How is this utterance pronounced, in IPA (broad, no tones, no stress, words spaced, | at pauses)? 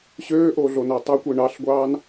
ɕøːʔoɮonæ tˤøkʷi ɳɑɬɡʷɑːn